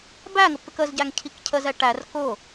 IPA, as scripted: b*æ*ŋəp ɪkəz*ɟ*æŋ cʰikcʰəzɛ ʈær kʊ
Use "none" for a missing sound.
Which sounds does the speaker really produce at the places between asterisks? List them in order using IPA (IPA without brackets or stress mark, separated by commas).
æ, ɟ